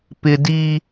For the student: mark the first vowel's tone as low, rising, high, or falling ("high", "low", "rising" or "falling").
high